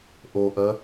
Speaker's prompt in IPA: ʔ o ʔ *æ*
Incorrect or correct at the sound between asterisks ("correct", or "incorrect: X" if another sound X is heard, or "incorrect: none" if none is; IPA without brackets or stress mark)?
incorrect: ɜ